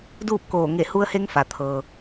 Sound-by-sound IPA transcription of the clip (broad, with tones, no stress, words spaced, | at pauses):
duː˥˨p̚koː˧˩ ŋe˧˩hu˧ə̯he˧ŋ fa˩ t̪ʰɤː˩